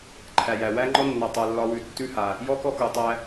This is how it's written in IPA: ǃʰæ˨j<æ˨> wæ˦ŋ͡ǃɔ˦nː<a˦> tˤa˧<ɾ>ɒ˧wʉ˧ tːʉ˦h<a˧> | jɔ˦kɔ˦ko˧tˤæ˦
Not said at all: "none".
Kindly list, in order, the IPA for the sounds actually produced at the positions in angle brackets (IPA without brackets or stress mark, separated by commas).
æ˨, a˧, lː, a˧